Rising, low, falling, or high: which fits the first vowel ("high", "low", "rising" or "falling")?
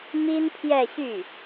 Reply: high